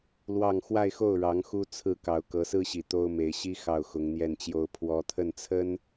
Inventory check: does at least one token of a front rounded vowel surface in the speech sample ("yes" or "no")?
no